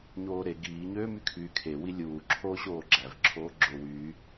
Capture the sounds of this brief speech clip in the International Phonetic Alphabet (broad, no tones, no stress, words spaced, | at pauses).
ɲoːɾe ɡiːɲøː mykʰyːkʰewi lʲuːǁʰoː ɕoːɡ͡ǁævǁʰoː ɡ͡ǁowyː